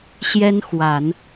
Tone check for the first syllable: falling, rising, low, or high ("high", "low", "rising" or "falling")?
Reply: high